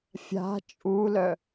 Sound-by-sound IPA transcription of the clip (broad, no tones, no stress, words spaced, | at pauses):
fʲa̤ t͡ʃʼulœ